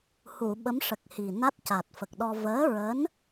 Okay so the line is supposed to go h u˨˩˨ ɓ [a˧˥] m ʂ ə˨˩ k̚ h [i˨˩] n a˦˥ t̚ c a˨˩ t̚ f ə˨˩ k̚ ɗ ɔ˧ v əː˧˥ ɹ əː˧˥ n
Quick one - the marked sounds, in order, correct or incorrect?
incorrect: ə˧˥, correct

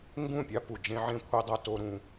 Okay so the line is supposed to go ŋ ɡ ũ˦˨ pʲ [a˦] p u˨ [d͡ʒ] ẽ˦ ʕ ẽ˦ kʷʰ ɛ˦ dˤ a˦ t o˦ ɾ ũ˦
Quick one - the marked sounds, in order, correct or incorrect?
correct, correct

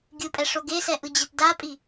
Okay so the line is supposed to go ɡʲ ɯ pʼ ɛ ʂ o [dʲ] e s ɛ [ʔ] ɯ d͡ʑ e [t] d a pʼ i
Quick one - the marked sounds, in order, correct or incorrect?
incorrect: ɡ, correct, correct

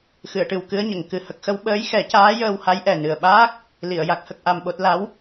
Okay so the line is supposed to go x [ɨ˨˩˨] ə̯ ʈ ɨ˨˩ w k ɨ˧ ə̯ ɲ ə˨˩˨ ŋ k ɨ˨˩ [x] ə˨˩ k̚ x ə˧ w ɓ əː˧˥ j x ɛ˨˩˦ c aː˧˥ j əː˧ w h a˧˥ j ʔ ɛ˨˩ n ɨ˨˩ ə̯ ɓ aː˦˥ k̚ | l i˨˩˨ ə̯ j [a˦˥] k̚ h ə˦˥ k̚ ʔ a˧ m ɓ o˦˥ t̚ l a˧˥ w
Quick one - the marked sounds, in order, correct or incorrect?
correct, incorrect: h, correct

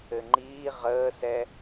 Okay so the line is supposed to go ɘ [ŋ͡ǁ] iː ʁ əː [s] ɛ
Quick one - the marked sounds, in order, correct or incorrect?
incorrect: ŋ͡ǃ, correct

